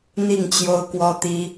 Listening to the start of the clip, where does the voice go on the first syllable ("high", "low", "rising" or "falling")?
falling